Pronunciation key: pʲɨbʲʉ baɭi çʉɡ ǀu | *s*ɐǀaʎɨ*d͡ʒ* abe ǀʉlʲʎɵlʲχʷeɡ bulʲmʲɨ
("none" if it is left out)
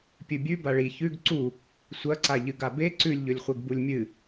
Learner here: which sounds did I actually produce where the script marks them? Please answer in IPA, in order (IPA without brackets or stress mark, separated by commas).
sʷ, ɡ